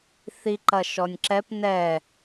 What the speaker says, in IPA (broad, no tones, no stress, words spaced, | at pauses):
θiǃɐ ʃɔnʲǁɛp nɛ